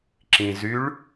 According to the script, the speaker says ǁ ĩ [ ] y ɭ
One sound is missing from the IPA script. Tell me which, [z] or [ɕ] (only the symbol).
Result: z